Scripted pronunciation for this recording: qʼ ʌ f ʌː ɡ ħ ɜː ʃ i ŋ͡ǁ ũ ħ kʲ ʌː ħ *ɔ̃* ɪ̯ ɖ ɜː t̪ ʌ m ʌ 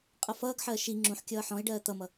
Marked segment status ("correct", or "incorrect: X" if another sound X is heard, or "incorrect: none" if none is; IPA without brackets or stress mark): correct